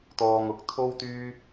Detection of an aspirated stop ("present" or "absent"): present